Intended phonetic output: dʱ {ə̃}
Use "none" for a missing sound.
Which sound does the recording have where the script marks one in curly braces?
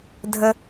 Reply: ə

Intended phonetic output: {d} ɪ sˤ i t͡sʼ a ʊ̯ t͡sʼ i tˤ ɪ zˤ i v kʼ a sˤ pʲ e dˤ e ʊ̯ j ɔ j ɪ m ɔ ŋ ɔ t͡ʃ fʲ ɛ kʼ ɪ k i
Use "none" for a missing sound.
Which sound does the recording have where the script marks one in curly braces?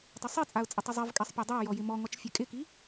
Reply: tˤ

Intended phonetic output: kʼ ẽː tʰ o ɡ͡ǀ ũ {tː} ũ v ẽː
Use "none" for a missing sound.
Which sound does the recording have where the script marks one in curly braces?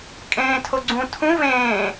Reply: tʰ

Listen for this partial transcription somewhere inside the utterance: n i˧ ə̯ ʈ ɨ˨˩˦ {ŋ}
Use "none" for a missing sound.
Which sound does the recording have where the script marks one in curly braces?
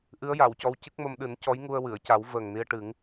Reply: ŋ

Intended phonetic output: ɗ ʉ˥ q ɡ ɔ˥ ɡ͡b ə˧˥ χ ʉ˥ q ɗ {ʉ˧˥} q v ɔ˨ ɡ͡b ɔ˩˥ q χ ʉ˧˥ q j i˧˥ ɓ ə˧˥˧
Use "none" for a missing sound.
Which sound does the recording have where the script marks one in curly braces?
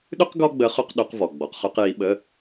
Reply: ʉ˧˥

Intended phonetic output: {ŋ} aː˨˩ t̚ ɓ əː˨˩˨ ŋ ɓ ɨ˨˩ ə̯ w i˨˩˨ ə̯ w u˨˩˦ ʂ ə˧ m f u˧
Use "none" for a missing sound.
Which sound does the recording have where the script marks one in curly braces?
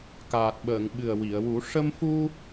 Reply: k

